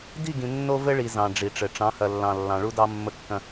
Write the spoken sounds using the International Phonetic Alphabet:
di˦˨ɡĩ˨ nːo˦ vɘ˦ɭi˨ zɑ̃˨ ɖ͡ʐi˨ʈ͡ʂɘ˨ ʈ͡ʂɑ̃˨˦hɐ˨lːɑ̃˨ lːɑ̃˨ɭu˦dɑ˦ mːə˦kːɐ̃˦

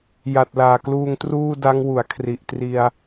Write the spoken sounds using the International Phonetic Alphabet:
ja˨˩t̚laː˨˩kluː˧ŋ truː˥˩da˦˥ŋwu˩˦a̯ kʰri˨˩ʔtri˧a̯

